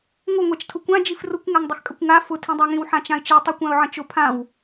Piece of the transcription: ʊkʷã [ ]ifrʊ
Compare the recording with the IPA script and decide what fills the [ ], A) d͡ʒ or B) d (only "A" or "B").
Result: A